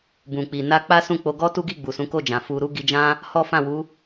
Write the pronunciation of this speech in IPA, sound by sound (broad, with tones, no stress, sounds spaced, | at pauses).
b ũ˨ k͡p i˨ n a˧ k͡p a˦ s ũ˦˨ k͡p o˧ ɡ ɔ˦ t u˦ ɡ i˦˨ ɡ͡b u˨ s ũ˨˦ k o˦˨ d͡ʒ ã˨ f u˧ ɾ u˦ ɡ i˧ d͡ʒ ã˦ | h ɔ˦ f ã˦˨ w u˨˦